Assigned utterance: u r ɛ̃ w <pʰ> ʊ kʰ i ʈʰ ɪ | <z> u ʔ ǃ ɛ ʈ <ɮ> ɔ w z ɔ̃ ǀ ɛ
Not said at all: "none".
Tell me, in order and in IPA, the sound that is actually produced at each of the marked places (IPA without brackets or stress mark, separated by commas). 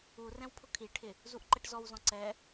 pʰ, z, z